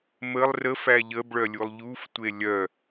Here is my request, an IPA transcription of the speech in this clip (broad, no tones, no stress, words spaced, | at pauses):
məlˠ rə fæʎəbɭœ lʲulˠʎuftʷe lʲœ